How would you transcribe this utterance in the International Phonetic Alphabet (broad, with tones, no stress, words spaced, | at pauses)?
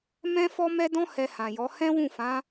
mɛ̃˦ fɔ˦mɛ˦dɔ̃˦ hɛ˧hã˨jɔ˨˦ hɛ̃˦wũ˦˨fã˨˦